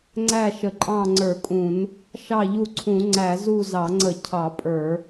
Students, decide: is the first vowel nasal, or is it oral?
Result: oral